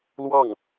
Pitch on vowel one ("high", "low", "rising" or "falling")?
falling